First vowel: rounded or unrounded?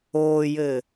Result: rounded